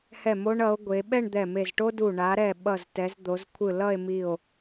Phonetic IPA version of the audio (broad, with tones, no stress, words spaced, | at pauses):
hɛ˧˩mo˧ɳʌ˩˧o̯ ɡʷe˩˧ ɓɛ˥˧ɳd̪ɛ˧˩me˧˩z ʈo˥du˧˩ ɳa˩˧ɾɛ˧˩ ɓʌ˧˩ztɛ˩˧zd̪o˩˧z kʷʰɯ˧˩lʌ˥˧e̯mi˧˩o̯